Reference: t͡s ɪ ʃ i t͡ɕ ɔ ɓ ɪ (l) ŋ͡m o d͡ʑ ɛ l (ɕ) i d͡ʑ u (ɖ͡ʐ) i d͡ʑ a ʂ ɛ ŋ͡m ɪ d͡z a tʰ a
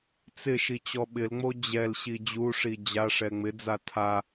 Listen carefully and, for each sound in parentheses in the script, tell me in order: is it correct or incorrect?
correct, correct, incorrect

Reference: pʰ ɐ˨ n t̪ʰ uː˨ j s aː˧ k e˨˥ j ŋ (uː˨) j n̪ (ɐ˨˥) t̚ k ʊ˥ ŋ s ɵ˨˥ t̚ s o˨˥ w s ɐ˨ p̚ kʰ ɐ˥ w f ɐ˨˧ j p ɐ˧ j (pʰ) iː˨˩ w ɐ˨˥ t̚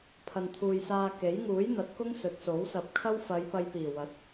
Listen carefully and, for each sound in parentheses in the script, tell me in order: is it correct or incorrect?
incorrect, correct, incorrect

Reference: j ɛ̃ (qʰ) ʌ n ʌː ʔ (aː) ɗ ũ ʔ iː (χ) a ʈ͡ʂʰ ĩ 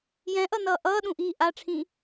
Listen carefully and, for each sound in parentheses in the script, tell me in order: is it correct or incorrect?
incorrect, incorrect, incorrect

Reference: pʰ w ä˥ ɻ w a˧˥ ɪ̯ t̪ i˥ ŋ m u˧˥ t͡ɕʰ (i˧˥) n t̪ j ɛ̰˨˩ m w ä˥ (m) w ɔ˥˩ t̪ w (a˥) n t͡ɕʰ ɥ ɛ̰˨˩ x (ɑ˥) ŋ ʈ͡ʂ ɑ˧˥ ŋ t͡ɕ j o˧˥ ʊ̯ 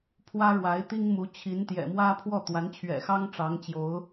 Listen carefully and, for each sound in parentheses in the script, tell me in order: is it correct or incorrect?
correct, incorrect, incorrect, correct

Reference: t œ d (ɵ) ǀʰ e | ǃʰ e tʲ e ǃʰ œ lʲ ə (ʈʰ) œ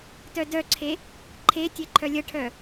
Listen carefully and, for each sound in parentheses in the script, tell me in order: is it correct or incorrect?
incorrect, correct

